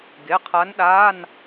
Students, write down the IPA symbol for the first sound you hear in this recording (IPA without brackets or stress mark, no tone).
ɡ